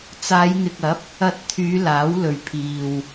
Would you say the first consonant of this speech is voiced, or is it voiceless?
voiceless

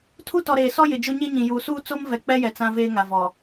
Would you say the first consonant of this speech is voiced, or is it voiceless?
voiceless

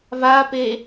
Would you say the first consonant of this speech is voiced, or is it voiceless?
voiced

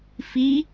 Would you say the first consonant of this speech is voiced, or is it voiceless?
voiceless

